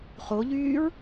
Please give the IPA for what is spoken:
χ o ʎ yː ɹ

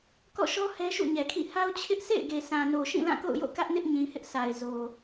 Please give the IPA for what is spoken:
k ɔ̰˦˨ ʃ ɔ˦ h ɛ˦ ʃ ṵ˦˨ ɲ ɛ˨ kʰ ḭ˦˨ h a˦ ʊ̯ t͡ɕʰ ɪ˦ ʔ s ḛ˦˨ ɪ̯ ɡ e˨ s ã˨ n o˨ ʃ ĩ˦˨ l ã˦˨ k o̰˦˨ ʊ̯ j o̰˦˨ k ä˦ ʔ n ɪ˦ ʔ ɲ ĩ˨ h ɪ˦ ʔ s a˨ ɪ̯ z o˨

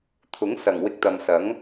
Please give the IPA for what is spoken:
t̪ʰ ʊ˨˥ ŋ s ɐ˨˩ ŋ w ɪ˧ k̚ t̪ ɐ˨ m s ɐ˨˥ ŋ

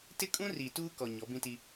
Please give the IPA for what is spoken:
t ɪ˦ kʼ ũ˦ r i˨ t uː˦ k ɔ˨ ɲ ɔ˨˦ b ĩ˦ t i˦

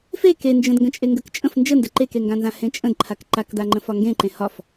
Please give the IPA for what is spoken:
f e k e n d͡ʒ ə̃ d ŋ ɡ ə̃ t͡ʃʼ e ŋ ɡ ə k t͡ʃʼ ə̃ f n d͡ʒ ə n d ə ǃ e k e ŋ ɡ ã n z ã h ẽ t͡ʃʼ ə̃ d ǃʰ a k ǃ a k d a ŋ͡ǃ ə̃ f ɒ ŋ ɡ ẽ ǃ ẽ h ɒ f

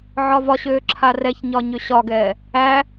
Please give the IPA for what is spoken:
ʕ ɒ v ɒ ɕ øː ǁʰ a r ɛ ç ɲ ɒ ɲ ø ɕ ɒ ɡ ɛː | æ

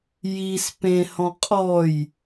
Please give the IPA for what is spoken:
j i s p ẽ h ɔ̃ qʼ ɔ j

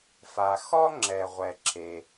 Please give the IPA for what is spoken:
f a˩ x ɔ˥ ŋ͡ǁ ɛ˩ ʁʷ ɛ˩ ǁ e˩

